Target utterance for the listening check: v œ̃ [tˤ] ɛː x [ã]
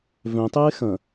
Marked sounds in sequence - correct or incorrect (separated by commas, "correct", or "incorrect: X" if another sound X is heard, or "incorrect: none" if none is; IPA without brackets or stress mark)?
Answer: correct, incorrect: ɐ̃